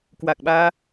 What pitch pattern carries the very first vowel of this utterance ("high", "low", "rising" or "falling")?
low